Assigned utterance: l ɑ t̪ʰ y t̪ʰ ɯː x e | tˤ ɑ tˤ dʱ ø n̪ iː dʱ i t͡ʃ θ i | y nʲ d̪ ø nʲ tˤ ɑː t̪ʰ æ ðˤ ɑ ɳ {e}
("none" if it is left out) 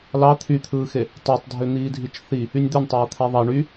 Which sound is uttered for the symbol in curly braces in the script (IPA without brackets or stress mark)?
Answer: y